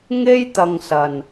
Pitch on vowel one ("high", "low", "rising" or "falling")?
high